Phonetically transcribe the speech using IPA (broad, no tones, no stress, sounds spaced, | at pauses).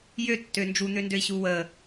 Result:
j ø tː ø n d͡ʒ u n̪ ø n d ø i̯ ɕ u w ə